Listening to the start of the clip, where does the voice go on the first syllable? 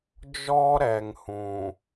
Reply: high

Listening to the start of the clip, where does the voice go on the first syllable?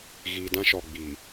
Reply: low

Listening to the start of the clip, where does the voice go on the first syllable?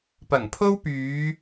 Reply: low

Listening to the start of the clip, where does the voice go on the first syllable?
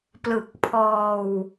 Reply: low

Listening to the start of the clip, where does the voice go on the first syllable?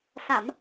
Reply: low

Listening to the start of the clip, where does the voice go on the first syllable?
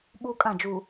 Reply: high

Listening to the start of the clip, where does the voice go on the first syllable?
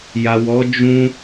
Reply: low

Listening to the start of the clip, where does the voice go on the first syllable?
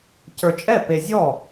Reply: low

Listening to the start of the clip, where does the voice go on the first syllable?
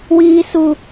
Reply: high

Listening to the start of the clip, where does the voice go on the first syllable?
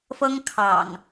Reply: high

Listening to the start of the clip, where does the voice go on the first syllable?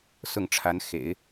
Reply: falling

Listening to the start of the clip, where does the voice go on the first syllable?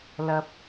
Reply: high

